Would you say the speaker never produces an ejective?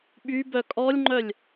no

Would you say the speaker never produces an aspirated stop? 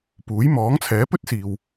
no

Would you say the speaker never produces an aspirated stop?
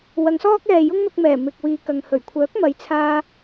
no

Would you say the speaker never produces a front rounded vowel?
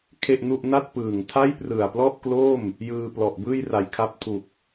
yes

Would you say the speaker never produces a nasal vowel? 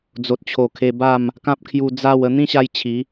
no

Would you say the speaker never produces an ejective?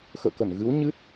yes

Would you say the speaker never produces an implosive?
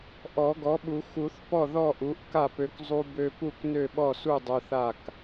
no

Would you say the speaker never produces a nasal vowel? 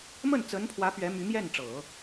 yes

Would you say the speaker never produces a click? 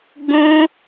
yes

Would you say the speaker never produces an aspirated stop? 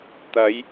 yes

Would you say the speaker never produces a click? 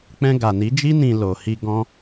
yes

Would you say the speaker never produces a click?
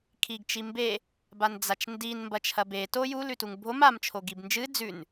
yes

